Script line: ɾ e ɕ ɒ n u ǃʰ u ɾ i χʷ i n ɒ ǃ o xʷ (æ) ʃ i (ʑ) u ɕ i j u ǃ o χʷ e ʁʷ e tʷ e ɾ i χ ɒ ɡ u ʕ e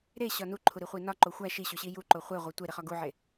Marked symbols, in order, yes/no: yes, no

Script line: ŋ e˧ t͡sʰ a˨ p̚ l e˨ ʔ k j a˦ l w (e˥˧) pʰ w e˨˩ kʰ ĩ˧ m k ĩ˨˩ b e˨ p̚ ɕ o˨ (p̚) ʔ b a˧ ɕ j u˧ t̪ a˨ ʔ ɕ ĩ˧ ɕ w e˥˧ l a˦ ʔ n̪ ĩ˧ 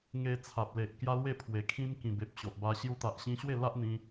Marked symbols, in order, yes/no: yes, no

